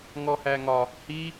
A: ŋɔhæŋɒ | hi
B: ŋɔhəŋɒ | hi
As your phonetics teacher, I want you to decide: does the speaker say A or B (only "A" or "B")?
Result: A